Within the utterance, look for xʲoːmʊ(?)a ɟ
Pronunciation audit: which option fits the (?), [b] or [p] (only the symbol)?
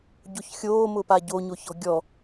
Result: p